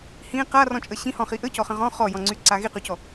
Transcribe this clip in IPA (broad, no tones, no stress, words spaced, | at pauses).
hĩ qarɔ̃t͡ʃʼə ɕĩhɔ̃χi ʔəcɔχə̃ ʁɔ̃ χɔjɔ̃ŋ͡ǀyǀa ɣiqycɔ